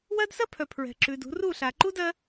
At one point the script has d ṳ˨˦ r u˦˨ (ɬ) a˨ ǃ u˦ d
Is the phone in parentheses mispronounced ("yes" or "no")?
no